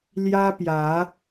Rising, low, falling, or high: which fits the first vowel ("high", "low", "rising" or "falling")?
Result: high